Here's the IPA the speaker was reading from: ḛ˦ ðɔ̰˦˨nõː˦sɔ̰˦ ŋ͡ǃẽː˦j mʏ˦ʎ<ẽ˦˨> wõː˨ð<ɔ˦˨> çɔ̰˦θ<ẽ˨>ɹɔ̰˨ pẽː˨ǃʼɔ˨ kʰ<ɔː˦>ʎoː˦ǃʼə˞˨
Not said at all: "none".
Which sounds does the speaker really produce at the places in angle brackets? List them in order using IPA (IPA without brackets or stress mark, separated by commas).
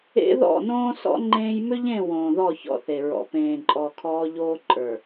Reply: ẽ˦˨, ɔ˦˨, e˨, ɔː˦